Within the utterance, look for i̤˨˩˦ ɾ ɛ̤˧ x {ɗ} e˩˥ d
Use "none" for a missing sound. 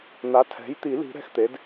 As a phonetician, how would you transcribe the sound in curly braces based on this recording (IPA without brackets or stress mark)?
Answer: t̪